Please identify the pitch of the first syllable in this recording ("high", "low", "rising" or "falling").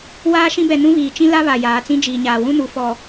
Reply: high